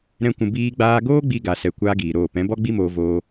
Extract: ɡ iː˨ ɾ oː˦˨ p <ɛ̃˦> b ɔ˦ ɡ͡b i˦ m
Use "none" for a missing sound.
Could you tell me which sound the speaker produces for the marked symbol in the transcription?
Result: ɛ̃˨˦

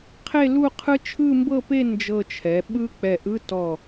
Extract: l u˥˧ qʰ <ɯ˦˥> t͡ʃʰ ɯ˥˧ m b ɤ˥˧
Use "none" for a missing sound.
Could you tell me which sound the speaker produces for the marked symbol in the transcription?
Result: ɯ˦˥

